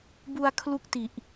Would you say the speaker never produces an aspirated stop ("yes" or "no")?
no